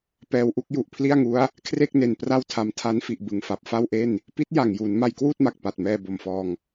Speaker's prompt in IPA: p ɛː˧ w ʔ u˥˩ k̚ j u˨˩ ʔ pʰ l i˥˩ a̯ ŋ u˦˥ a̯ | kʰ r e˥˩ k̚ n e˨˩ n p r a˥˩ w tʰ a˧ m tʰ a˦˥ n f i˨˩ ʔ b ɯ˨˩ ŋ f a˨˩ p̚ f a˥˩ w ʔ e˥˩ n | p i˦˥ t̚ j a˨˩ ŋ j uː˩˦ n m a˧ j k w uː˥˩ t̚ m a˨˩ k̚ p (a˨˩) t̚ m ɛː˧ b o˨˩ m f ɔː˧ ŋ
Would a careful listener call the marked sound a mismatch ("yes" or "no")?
no